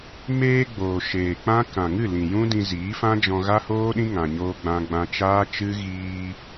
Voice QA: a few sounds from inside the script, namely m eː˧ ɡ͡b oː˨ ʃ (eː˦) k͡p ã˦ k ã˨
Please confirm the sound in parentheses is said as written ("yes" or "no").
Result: no